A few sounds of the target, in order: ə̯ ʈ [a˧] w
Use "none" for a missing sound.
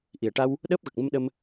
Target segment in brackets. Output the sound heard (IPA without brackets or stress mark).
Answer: a˧